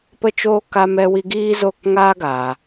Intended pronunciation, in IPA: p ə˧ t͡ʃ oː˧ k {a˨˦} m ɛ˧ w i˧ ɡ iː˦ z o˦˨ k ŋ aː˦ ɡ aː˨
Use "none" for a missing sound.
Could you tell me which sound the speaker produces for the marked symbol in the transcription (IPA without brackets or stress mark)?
a˧